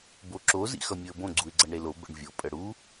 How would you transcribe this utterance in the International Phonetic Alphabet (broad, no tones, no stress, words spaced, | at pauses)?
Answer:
boǁo zḭxʌmʲoə̯bõ ɡ͡ǀuɪ̯ɡ͡ǀʌɳɾelo bə̰ɳvʲo pʼəɽu